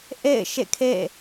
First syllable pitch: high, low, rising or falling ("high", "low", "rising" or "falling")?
falling